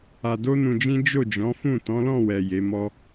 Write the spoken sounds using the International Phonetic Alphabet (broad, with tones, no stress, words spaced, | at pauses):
a˧do˦nũ˧d͡ʒĩ˦ d͡ʒo˦˨d͡ʒɔ̃˨˦fũ˦˨ tɔ̃˨˦lɔ̃˦˨wɛ˨ je˨˦mɔ˦